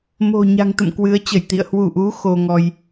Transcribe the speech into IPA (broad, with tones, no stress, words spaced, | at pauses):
mo̤˨˩ ɲa̤˨˩ŋt̪ə̰˧˨m kwɨ˨˦ə̯t͡ɕə˧˩jt̪ḭ˧˨ə̯ hwu˧˩ʔu˨˦ xo˧ŋɔ˧j